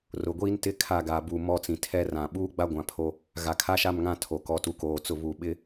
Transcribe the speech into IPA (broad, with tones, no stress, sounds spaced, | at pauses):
r ʊ˨ ɡʷ iː˦ n t ɪ˦ kʰ a˦˨ ɡ a˨ b u˨ m ɔ˦˨ t͡s ĩ˨ tʰ ɛ˦ r ã˨ ɓ uː˦ ɡ͡b a˦ ɡʷ ã˨ pʰ o˦ | ɣ a˨ kʰ a˦ ʃ a˦˨ m ŋ ã˦˨ tʰ o˨ k ɔ˨ t u˨ k oː˨ t͡s ʊ˦˨ β u˨ ɓ ɪ˦